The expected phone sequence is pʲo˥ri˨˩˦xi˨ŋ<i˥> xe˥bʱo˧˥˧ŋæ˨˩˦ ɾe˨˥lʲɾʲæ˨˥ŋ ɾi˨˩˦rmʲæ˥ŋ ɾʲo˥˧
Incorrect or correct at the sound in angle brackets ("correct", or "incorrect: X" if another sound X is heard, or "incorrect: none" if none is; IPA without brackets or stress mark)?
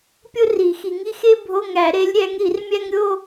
correct